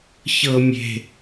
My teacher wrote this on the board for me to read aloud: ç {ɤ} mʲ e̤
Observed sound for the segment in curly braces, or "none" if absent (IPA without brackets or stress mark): ɤ